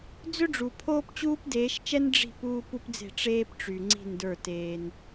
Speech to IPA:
d͡z ʏ˦ ɖ͡ʐ u˨ pʰ oː˦ p t͡ɕ uː˦ p d eː˨˦ ʃ t͡ʃ ɛ˦ n ɖ͡ʐ i̤˦˨ p uː˦ p u˦ p d͡z e̤˦˨ ʈ͡ʂ eː˦ p ʈ͡ʂ y˨ ŋ͡ǀ i̤˦˨ n d ə˞˦˨ t eː˦ n

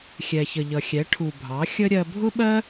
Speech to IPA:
xʲ ɛ˩ ç ə˩ ʎ ʌ˩ xʲ ɛ˩˧ ʈʰ u˩ bʱ ɑ˩˧ xʲ ə˧ ɾʲ ɜ˧ bʱ ʊ˥ ɓ ɜ˥

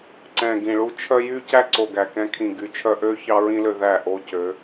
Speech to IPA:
ǀ ɛ̃˨ ɡ ĩ˨ ɭ u˦ t͡ʃʰ œ˦ j y˦ c æ˦ ǀ o˨ ɡ æ˨ k ɛ̃˧ kʰ ĩ˨ ɡ y˨˦ t͡ʃʰ œ˧ ʔ ø˦ ç ɑ˦ ɹ ĩ˦ l ø˧ ð æ˦˨ ʔ o˦ c ø˨˦

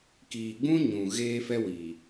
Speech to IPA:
k iː˨ ɡ͡b ũ˦ ɲ ũ˨ ɣ eː˦ f ɛ˦ w iː˨

